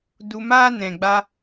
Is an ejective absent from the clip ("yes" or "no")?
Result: yes